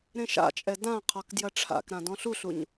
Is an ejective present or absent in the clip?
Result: present